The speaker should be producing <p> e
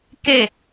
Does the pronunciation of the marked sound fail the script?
yes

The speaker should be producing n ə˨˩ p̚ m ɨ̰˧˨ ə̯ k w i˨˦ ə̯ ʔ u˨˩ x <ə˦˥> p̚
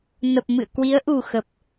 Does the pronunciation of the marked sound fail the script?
yes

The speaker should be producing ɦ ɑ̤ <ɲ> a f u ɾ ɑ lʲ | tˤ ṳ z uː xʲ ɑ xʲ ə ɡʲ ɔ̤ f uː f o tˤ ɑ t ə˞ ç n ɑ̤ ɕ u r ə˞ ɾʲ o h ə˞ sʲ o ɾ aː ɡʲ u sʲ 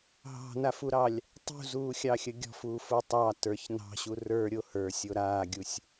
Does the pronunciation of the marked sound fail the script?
yes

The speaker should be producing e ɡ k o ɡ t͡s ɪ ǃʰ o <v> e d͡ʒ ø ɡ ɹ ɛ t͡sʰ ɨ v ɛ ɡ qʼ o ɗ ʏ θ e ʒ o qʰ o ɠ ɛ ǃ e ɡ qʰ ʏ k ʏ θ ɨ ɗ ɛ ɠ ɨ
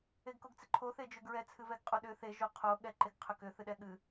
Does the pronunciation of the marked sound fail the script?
yes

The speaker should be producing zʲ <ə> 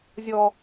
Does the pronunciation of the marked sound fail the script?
yes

